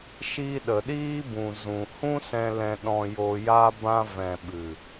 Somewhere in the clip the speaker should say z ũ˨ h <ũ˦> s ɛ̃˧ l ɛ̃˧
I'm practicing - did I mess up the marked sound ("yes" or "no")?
no